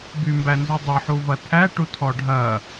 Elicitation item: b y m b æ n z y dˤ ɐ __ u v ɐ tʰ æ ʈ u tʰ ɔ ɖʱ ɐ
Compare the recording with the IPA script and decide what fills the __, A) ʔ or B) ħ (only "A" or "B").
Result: B